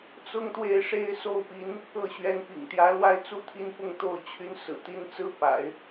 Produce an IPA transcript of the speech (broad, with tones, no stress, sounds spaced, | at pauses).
t͡s ʊ˥ ŋ t̪ w e˥˩ ɪ̯ ʂ e˥ ɪ̯ s o˥˩ ʊ̯ p i˧˥ n | ɤ˥˩ ɕ ɥ ɛ˧˥ n p ḭ˨˩ ŋ t̪ j ä˧˥ l w a˥ ɪ̯ t͡s u˥˧ t̪ʰ i˥˧ n p ʊ˥˧ ŋ t̪ o˥˩ ʊ̯ t͡ɕʰ y˧˥ n s ɹ̩˨˩ t̪ i˧˥ n t͡s ɹ̩˥ p a̰˨˩˦ ɪ̯